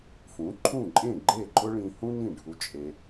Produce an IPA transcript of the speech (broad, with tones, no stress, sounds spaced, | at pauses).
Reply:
f ũ˩˥ ǃʰ ũ˥˩ ǃʼ ẽ˥˩ ɡ͡ǃ e˥˩ ǃʼ ʊ˥ ɭ ĩ˧ h ũ˥ n ĩ˥˩ ɖʱ u˧ t͡ʃʼ e˧